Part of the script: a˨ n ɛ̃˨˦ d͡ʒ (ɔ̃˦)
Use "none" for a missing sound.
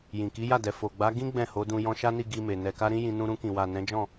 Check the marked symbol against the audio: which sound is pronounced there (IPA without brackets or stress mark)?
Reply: ɔ̃˦˨